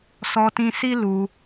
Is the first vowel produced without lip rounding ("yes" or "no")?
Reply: no